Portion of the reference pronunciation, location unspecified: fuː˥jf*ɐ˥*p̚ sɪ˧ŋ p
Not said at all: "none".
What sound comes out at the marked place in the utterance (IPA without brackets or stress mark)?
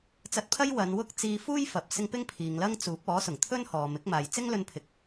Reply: ɐ˨